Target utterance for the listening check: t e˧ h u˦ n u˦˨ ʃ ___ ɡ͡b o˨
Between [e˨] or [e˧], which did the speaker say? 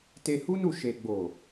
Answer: e˨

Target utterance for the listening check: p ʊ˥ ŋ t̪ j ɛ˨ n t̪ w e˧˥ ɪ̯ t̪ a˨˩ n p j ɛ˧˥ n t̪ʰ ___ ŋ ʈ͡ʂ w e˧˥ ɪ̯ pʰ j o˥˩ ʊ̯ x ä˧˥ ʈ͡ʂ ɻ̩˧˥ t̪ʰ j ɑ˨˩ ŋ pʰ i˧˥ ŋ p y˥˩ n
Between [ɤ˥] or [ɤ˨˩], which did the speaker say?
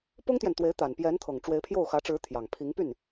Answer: ɤ˨˩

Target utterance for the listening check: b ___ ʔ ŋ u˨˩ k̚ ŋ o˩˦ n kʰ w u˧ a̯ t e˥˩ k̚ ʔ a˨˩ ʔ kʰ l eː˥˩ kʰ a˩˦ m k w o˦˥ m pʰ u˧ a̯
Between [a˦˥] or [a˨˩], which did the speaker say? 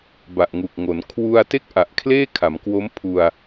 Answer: a˨˩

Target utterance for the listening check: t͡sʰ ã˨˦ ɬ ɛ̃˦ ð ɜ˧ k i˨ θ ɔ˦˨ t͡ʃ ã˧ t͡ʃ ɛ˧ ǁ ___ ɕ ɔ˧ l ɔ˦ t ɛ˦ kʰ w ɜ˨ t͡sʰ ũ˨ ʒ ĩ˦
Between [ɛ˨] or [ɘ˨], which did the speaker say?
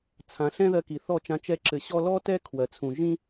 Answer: ɘ˨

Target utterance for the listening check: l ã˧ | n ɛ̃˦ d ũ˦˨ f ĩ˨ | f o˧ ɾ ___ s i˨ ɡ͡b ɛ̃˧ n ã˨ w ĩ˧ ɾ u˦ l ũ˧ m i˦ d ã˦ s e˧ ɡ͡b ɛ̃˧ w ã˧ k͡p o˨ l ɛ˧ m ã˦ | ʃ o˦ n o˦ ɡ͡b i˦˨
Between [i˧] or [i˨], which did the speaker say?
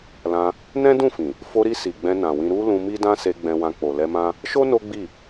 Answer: i˧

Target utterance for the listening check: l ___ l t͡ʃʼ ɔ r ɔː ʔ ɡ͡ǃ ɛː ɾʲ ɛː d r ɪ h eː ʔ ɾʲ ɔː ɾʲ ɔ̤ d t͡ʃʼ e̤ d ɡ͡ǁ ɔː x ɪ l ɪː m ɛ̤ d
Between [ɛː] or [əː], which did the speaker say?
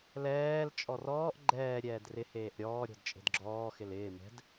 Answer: ɛː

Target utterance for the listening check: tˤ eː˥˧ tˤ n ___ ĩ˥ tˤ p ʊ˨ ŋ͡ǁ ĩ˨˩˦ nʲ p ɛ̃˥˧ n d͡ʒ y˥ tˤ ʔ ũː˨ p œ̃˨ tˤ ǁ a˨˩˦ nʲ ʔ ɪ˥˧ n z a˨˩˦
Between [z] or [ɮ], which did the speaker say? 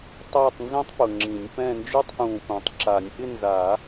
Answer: z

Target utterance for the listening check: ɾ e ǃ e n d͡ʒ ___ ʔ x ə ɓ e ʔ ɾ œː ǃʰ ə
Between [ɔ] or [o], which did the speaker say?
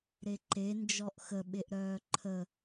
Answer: ɔ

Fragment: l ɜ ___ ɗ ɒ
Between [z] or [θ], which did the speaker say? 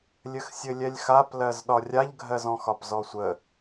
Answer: z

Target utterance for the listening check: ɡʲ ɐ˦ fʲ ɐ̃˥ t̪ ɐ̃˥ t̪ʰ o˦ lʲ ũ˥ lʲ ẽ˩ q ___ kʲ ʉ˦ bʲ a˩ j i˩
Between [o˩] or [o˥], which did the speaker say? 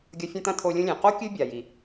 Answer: o˥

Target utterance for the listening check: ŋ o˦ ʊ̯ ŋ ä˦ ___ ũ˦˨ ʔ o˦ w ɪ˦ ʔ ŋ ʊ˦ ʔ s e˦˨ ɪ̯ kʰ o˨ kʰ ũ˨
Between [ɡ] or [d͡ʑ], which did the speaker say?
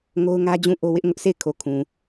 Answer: d͡ʑ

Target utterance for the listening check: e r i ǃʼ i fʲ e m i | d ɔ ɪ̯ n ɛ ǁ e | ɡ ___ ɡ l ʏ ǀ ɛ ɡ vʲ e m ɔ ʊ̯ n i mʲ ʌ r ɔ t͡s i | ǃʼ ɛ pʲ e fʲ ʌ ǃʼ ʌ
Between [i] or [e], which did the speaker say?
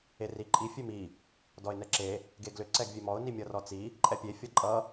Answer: e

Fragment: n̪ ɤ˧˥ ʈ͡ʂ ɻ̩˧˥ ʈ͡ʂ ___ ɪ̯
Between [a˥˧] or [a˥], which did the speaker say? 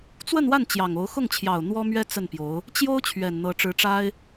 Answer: a˥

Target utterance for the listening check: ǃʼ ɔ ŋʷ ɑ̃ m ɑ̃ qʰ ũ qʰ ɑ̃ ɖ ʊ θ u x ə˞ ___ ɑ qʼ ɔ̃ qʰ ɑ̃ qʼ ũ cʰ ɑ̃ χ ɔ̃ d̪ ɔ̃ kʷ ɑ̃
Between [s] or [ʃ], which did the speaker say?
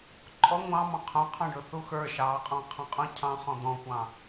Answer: ʃ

